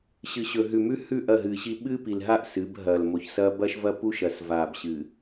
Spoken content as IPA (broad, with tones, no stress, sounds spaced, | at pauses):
ɕ ɨ˨ ɕ ɵ˨ ɦ ʉ˨ m ʉ˦ h ʉ˦˨ ʔ ɐ˦˨ ɦ ɨː˨ ɕ i˦ ɓ ɨː˦ p i˨ l ɦ a˦˨ ʔ s ɨ˨˦ b ɦ ɐː˨ l m o˨ ç s ɐː˦ b ɐː˦ ʃ v ɐː˦ p u˦ ʃ ɐ˨ s v aː˨ b ɕ ɨ˨